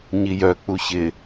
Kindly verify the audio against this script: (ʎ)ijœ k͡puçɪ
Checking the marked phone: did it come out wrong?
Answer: yes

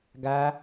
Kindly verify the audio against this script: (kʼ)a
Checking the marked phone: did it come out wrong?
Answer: yes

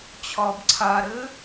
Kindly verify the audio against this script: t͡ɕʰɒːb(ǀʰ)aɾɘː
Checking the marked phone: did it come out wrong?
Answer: no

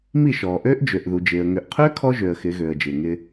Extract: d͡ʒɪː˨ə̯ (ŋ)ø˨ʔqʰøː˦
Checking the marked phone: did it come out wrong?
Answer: no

